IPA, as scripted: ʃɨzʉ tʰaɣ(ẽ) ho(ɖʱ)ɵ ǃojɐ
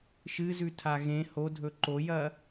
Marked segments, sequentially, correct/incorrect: correct, incorrect: dʱ

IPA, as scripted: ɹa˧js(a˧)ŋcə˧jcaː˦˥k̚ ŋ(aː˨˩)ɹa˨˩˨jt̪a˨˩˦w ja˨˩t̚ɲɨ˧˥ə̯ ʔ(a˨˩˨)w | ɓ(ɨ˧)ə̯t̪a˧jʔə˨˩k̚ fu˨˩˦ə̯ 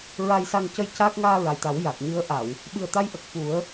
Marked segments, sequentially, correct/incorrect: correct, incorrect: aː˧, correct, incorrect: ɨ˨˩

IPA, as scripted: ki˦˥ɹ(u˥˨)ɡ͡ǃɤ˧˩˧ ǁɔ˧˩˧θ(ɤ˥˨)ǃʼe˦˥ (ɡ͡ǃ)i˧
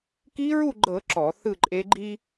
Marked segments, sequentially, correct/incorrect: correct, incorrect: ɯ˥˨, correct

